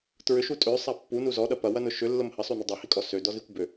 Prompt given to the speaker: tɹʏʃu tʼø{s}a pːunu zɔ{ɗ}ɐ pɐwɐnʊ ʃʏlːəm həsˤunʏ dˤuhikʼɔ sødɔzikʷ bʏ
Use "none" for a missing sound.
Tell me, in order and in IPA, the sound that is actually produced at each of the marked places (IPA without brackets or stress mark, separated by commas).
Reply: sˤ, ɗ